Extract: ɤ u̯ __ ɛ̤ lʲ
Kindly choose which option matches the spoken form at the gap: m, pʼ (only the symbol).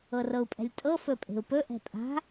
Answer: pʼ